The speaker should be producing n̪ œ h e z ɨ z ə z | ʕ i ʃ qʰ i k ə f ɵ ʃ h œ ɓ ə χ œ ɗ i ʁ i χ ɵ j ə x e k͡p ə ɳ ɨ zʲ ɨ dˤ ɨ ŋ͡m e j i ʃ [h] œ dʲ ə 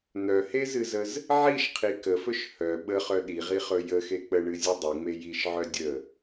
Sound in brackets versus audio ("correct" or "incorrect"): incorrect